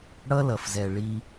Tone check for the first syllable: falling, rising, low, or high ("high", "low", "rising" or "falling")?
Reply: high